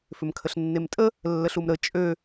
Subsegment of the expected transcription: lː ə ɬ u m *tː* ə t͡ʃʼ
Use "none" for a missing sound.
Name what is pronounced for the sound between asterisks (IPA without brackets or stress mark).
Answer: ɾ